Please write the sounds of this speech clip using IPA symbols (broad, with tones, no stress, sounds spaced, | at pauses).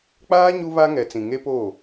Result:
k͡p aː˦ ɲ u˦ β a˦ ŋ ɛ˨ t͡s ĩ˨ ŋ e˦ p oː˦˨